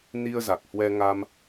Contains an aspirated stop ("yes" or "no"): no